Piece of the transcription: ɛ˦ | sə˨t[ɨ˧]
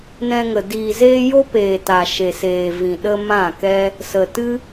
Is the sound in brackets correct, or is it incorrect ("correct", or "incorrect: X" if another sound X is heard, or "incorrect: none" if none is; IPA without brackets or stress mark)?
incorrect: ɨ˦